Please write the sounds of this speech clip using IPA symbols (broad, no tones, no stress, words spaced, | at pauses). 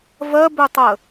vɜbøtˤə